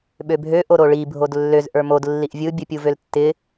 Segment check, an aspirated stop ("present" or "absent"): absent